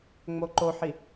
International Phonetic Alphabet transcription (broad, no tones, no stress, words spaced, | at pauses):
ŋ͡moǃoħi